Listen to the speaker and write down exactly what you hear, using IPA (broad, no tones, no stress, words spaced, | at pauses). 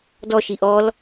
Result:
dɔʃi ʔɔl